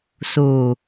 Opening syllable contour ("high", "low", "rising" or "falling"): low